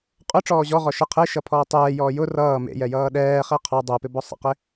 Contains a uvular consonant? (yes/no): yes